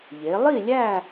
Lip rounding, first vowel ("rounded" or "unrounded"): unrounded